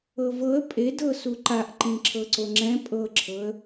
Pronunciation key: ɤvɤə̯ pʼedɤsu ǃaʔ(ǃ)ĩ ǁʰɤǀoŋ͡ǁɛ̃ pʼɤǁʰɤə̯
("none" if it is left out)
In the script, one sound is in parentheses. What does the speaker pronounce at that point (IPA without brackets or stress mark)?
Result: ǃ